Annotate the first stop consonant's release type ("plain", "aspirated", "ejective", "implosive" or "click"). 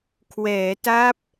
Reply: aspirated